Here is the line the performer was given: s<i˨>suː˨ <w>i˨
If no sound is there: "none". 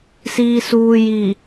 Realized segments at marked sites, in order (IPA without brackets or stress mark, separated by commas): iː˨, j